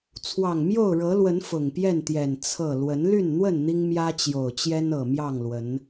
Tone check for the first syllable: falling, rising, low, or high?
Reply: low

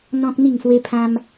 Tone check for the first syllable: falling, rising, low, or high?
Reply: high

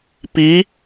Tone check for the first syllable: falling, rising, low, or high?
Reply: rising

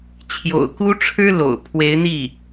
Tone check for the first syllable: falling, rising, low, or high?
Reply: low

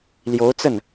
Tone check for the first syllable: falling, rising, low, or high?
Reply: rising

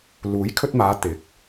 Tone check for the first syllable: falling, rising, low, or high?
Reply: rising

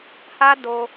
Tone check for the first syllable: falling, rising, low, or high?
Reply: high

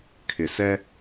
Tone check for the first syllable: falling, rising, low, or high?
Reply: low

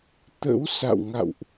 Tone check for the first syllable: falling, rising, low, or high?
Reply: rising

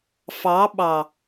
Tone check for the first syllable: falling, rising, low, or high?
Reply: rising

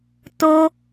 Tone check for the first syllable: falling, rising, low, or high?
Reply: high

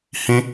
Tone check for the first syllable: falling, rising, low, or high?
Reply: high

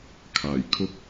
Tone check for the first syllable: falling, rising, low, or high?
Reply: low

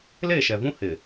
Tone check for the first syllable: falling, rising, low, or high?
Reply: falling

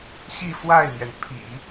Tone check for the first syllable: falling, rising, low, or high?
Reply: falling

